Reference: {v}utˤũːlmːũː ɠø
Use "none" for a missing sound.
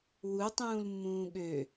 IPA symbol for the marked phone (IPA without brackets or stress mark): w